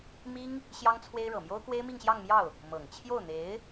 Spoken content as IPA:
mi˥ŋ | ɕjɑ˥ŋt͡sʰwe˥ɪ̯ ɻɤ˨˩mjo˥ʊ̯kwe˥ɪ̯ mi˥˧ŋɕjɑ˥˧ŋmjɑ˥˩ʊ̯ | mɤ˨˩ŋ t͡ɕʰjo˥˩ʊ̯n̪e˧˥ɪ̯

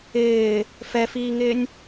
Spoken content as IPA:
ɪː | fɛfiːŋɪːnʲ

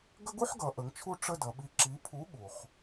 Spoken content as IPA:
ɡə˥ɡu˥ħɡʌ˩˧ ʔə˩˧ŋt͡ʃʰu˦˨ ʈ͡ʂə˦˨ dʌ˩˧ɓi˨˥ǁi˨˥ pʰu˨˥ɠu˩χ

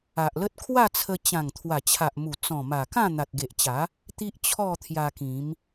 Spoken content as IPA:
a˨ʔlə˦t̚ kʰwa˥˧t͡sʰə˧ t͡ɕã˨˩ŋ t̪ʰwa˨˩t͡ɕʰa˨ʔmu˨˩ t͡sɔ̃˨˩ma˨˩kã˥˧ n̪a˨t̚ɡe˨ʔt͡ɕa˨˦ | t̪i˦ʔt͡ɕʰɔ˥˧t̪ʰja˧kĩ˨˦m

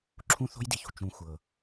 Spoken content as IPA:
ǁʰũ˥θo̤˥jdi˩çṳ˩ t͡ʃũ˩ xʷɤ˩

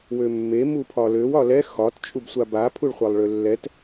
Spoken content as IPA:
wømːe mupʰɒløw ɒlɛ xɒt t͡ʃʼubsʷaba pʰuɭχʷalˠɭølːɛt

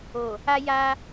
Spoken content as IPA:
o˨ | a˧ja˧

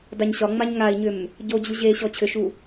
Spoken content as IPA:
daɲɕɒŋ͡maɲ ŋai̯ɲʏm | ɟod͡ʑu ʑeɕɔ t͡ɕʰʏʃu

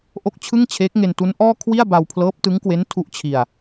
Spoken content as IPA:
ʔo˥˩k̚t͡ɕʰɯ˥˩ŋt͡ɕʰeː˦˥k̚ ŋe˧ntu˦˥nʔɔː˥˩ kʰwi˥˩a̯ba˧w pʰlɤː˦˥p̚tɯ˦˥ŋkwe˦˥n tʰu˦˥ʔt͡ɕʰi˧a̯

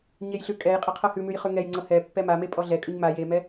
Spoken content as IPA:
ɲejɬʉkʼɛjqʼə qʰɤhʉmʉj χʉŋɛjŋ͡ǀɤ hɛ pːɛmame pʼɔɮɛkʼʉɲ ma jemɛ

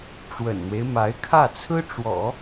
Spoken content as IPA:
ʈ͡ʂwə̰˨˩nn̪we˦ɪ̯ ma˧˥ɪ̯ kʰä˥˩t͡sʰɹ̩˥ʈ͡ʂwɔ̰˨˩˦

